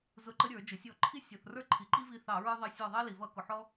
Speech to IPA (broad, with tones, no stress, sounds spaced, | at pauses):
z ʊ˧˩ ǃ ə˦ ɾʲ ə˞˧˩˧ d͡ʒ ʊ˩ sʲ ɔ˧˩˧ ǃʰ i˦ sʲ ɔ˩ θ r ə˞˦ ǃʰ i˩ ǃ i˦ v i˧˩ θ ɑ˧˩˧ ɹ ə˞˦ ðˤ ə˧˩ sʲ ɔ˧˩ ðˤ ɑ˦ l i˩ v ʌ˧˩˧ k ʊ˩ ħ ɔ˦